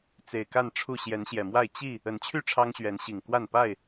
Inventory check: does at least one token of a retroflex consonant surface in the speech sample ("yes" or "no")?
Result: yes